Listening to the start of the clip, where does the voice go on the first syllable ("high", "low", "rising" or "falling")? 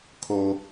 high